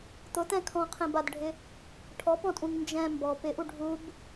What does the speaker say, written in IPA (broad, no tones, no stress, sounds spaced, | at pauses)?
t̪ ʊ t̪ ɛ̃ kʰ ɔ̃ qʰ ẽ b a d ɖʱ ɪ | ʈʰ ɔ p ɔ̃ tʼ ũ ŋ n d͡ʒ ɛ̃ m b ɔ p ɪ ʔ u ɖʱ u b